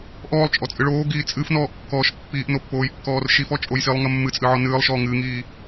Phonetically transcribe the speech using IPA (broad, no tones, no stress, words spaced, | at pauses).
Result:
ʔɔːlˠt͡ʃʼɔt͡sʼɨ ɭoːɡiː t͡sʼɨfnɔːʔkːɔːʃ pːiːʔnopːoːjkːɔːr ʃifɔt͡ʃʼoj silˠŋɐ mːɨt͡sʼɨʕɔ nɨːlˠʃɔː ŋɨːŋiː